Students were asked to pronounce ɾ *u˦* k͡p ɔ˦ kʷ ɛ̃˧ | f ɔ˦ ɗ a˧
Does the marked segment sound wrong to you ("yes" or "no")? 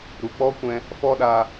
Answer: yes